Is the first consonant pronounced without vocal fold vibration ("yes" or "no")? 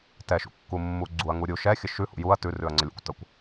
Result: yes